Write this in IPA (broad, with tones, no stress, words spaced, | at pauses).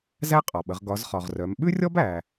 zæ˥qʼɒ˩ɓə˩˧ʁ ɡɒ˩˧z χɒ˩ʁrœ˩˧m ɓʉ˥rʲɔ˥b æ˩